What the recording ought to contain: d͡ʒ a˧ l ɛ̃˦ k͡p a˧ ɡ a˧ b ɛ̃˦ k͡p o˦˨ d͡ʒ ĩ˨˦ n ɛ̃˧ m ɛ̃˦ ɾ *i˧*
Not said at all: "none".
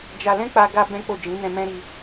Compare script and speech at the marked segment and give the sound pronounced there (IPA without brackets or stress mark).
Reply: i˧